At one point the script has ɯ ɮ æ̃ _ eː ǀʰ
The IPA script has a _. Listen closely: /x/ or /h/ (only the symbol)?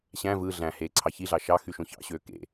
h